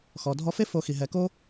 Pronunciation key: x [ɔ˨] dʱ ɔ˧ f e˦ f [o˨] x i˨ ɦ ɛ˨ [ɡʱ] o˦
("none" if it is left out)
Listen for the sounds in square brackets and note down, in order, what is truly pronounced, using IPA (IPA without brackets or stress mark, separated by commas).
ɔ˨, o˧, k